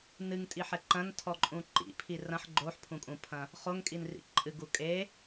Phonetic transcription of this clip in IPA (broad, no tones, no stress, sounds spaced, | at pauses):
n ɨ ŋ tʼ i ħ ɛ ǃ ɐ̃ n tʰ ɔ ǃʼ ũ ǃ ḭ pʰ i r ɐ̃ ħ ɡ͡ǃ o ħ pʰ ũ kʼ ũ pʰ ɐ̃ | χ o ŋ kʼ i n r ḭ ǃʼ ɨ ɡ u kʼ e